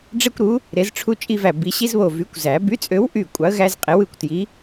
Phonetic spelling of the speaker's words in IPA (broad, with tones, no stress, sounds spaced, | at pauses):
ɖ͡ʐ e˦ kʷ ɾ u˨˥ | ɾ e˨˥ z ʈ͡ʂʰ u˦ t͡ʃʼ i˦ v æ˧˩ b i˨˩˦ ɕ i˦ z β o˧˩ v y˨˥ kʷ z æ˨˩˦ b y˨˥ t͡sʼ ø˨˥ w ʔ y˧˩ kʷʼ ɑ˨˥ ə̯ ɣ æ˦ z qʼ e˨˥ w ɯ˩˧˩ kʷ t j i˨˥